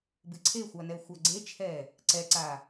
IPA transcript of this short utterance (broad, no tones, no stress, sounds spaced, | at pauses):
b ɨ ǀʰ e xʷ a n ɛ xʷ a ɡ͡ǀ e t͡ʃʰ ɛː | ǀ ɛ ǀ aː